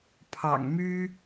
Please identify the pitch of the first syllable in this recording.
low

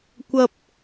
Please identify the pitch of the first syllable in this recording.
high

